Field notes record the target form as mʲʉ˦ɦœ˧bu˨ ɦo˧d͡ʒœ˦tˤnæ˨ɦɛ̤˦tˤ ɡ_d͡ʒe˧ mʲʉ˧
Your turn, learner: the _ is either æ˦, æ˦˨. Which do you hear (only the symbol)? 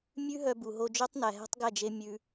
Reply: æ˦˨